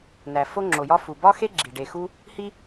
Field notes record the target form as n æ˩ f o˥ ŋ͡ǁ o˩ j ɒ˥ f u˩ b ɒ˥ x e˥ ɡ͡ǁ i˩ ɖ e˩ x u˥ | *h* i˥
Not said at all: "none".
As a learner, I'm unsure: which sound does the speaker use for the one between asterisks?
h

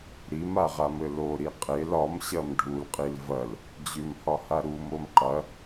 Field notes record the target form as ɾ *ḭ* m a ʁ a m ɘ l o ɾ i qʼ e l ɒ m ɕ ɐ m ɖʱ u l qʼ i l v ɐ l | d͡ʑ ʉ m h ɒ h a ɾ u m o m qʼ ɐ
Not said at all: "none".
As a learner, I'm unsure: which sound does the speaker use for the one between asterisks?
i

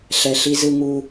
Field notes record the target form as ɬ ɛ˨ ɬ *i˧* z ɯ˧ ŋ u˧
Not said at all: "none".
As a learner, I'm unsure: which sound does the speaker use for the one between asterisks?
i˧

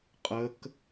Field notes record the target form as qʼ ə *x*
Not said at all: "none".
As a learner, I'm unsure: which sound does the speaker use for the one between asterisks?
k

